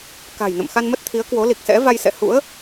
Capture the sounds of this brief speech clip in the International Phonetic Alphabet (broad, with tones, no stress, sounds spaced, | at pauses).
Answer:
k a̤˨˩ j n ə̰˧˨ m x a˧ n m ə˦˥ t̚ t̪ʰ i˨˦ ə̯ k w o˨˦ l i˨˩ k̚ s ɛ̰˧˥ v a˧ j s ɛ̰˧˨ h ṵ˧˥ ə̯